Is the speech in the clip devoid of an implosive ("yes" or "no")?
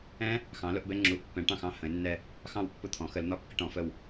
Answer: yes